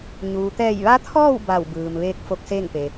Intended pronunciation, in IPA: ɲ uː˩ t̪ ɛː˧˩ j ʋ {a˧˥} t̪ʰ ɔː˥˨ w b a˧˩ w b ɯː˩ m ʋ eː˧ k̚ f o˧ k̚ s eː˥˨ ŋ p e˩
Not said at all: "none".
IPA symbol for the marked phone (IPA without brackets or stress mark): a˧˥